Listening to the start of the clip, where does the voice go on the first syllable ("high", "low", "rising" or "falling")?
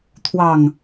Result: low